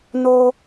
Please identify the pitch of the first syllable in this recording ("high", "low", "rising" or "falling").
high